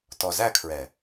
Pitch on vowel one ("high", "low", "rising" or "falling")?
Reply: low